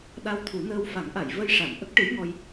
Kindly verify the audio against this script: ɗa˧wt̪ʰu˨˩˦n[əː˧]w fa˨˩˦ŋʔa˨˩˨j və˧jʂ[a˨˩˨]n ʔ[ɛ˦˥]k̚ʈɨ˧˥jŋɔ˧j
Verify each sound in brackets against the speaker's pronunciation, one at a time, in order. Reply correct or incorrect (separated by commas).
correct, correct, incorrect